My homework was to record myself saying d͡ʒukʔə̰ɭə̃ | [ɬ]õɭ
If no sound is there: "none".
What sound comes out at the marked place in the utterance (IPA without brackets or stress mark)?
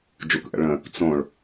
t͡s